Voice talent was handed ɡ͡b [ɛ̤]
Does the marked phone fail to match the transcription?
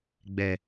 yes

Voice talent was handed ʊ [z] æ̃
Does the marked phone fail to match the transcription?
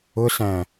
yes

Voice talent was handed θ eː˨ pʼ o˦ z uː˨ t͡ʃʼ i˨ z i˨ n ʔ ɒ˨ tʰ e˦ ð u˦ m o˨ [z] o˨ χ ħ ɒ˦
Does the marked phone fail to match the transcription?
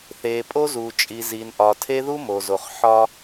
no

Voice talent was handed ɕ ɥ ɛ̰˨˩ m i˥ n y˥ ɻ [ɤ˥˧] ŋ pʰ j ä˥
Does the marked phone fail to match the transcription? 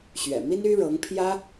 yes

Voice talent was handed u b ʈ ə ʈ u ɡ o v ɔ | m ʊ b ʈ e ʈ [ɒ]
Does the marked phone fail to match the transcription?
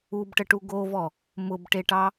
yes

